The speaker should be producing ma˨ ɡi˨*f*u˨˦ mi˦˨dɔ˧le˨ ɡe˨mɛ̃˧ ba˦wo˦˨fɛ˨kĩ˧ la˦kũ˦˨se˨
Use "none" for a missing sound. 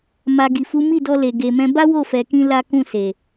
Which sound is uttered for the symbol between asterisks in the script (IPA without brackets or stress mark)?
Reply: f